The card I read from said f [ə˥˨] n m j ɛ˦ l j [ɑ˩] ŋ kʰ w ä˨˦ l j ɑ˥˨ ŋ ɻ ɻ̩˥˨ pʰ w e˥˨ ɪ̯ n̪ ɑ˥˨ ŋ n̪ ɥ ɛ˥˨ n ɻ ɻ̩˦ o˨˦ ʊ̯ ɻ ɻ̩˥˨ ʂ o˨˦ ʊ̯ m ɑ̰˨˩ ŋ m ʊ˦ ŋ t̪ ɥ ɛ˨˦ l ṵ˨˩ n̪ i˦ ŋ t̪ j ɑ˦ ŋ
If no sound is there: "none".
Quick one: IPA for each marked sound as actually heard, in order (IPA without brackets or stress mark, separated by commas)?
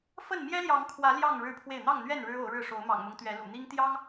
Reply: ə˥˨, ɑ˨˦